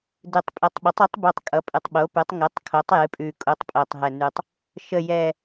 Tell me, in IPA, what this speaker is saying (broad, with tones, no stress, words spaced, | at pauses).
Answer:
dɨ˨˩tˤpʼɛ˩˥tˤɓə˩˥tˤi˩˥tˤ bu˨˩tˤ kʼʌ˩˥pʼɨ˨˩tˤɓo˩˥pʉ˩˥tˤ ŋɨ˩˥tˤ kʰo˩˥tˤjɨ˩˥ pʼʉ˨˩kʼu˩˥tˤ pʼo˨˩tˤɦɛ˨˩nʉ˨˩tˤ | ʃə˨˩jɛ˨˩